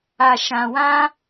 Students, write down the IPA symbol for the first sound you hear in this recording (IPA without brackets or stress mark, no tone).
a